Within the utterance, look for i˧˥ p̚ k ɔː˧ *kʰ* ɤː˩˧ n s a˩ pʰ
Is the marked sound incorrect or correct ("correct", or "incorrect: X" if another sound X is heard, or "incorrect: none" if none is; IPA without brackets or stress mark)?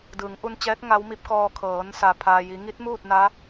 correct